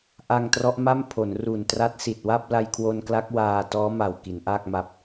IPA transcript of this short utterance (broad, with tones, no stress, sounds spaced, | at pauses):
ʔ a˧ ŋ t r ɔ˦˥ ʔ m a˥˩ m pʰ o˩˦ n r u˨˩ n t r a˦˥ t̚ s i˨˩ t̚ w a˥˩ p̚ l a˧ j kʰ w o˧ n k l a˦˥ k̚ w aː˧ t ɔː˦˥ m a˨˩ w k i˩˦ n ʔ aː˥˩ k̚ m a˦˥ p̚